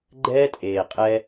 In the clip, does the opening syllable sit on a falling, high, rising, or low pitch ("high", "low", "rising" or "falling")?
high